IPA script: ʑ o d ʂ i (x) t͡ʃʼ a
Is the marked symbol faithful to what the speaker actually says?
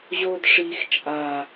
yes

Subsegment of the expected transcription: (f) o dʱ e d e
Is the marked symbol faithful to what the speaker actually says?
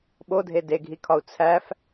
no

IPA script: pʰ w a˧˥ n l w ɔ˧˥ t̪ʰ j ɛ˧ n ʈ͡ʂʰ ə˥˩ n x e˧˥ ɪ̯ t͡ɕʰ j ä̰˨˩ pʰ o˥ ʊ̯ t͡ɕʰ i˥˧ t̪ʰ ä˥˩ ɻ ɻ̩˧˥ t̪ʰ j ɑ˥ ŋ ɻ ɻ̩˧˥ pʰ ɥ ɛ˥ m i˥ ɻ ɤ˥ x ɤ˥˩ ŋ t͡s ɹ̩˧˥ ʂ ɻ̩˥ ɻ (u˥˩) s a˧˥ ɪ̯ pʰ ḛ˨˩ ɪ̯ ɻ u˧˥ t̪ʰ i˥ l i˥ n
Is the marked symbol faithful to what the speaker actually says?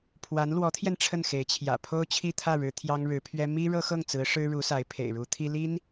no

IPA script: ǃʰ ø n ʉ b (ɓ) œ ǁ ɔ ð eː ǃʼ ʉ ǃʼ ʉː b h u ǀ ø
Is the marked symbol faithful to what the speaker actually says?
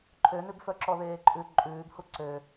no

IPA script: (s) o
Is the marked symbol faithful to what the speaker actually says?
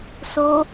yes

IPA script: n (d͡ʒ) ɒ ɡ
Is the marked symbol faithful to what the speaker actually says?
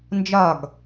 yes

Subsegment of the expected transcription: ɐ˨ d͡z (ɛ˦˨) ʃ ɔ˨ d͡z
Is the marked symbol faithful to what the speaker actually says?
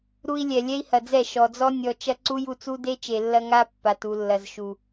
yes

